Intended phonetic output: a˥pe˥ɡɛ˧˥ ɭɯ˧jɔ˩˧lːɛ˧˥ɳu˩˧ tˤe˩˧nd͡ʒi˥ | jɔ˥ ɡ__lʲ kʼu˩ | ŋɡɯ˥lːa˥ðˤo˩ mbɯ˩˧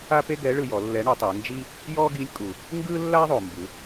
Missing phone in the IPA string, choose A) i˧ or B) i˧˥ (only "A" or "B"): B